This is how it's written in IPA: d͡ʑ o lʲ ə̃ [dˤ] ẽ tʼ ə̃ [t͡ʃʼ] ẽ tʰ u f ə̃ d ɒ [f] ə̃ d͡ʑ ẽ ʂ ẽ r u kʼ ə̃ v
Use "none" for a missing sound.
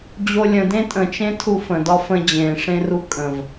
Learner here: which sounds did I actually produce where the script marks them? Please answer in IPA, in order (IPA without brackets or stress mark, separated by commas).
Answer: d, t͡ʃ, f